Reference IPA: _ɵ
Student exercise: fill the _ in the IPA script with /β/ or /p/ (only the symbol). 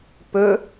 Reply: p